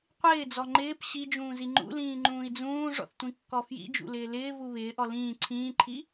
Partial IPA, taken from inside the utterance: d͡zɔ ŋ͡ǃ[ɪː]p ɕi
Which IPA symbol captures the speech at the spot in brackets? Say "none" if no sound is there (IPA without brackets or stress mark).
ɪː